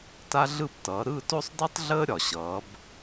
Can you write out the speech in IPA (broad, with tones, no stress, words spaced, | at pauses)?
ta˦ɮɯ˦˨ptʌː˩˧ ɾɯ˦˨to˦sˤdi˦tˤɮəː˦ ɾʲɒ˩ɕʌː˩˧b